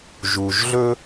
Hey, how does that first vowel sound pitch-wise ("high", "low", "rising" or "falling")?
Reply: low